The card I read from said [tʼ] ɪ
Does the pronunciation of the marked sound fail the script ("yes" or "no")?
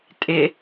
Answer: no